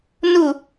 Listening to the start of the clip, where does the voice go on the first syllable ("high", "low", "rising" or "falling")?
falling